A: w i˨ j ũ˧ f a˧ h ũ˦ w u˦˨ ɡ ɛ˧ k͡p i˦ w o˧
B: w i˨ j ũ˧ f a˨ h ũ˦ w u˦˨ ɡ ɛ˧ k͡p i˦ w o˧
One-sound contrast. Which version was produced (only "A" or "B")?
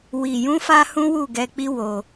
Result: A